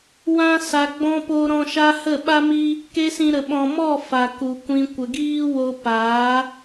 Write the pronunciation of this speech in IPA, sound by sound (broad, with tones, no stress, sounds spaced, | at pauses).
w ã˧ s a˨ ɡ͡b ɔ̃˧ p o˧ ɾ ɔ̃˧ ʃ a˦ h ə˦˨ ɓ a˦ m i˦ | k e˦ s ĩ˧ ɾ ə˨ ɓ ɔ̃˨ m ɔ˦˨ f a˨ k u˨ kʷ ĩ˧ kʷ ə˨ ɡ iː˦ w o˧ p aː˨˦